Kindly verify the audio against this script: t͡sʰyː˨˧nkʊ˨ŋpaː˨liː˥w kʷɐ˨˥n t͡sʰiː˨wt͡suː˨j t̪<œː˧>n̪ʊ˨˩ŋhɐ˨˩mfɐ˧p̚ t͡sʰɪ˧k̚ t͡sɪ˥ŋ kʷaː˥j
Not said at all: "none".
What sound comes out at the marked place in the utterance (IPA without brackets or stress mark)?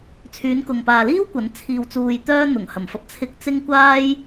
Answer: œː˥